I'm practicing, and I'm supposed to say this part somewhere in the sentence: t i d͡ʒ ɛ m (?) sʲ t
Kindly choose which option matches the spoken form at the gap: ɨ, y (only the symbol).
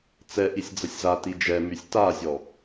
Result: y